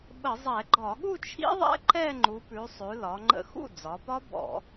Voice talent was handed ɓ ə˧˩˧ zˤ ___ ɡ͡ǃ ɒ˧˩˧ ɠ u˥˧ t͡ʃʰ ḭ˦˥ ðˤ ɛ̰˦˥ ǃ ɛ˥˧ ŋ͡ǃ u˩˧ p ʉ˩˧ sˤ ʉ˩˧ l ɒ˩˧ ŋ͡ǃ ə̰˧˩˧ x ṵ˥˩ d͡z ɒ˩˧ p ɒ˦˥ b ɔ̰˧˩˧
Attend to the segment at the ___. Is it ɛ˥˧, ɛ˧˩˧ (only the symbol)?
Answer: ɛ˧˩˧